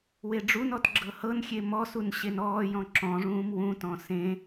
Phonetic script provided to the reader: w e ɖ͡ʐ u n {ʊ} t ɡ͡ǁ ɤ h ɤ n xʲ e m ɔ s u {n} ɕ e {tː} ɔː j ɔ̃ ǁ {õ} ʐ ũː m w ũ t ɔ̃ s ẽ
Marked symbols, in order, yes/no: no, yes, no, no

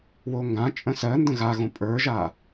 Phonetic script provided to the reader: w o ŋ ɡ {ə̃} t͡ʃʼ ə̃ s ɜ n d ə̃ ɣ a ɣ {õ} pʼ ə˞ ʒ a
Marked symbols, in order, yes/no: no, yes

